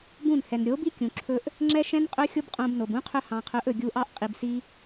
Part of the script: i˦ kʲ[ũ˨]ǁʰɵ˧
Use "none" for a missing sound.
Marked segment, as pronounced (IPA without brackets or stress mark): ũ˨